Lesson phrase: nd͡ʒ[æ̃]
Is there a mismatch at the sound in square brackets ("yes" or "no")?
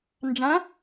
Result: no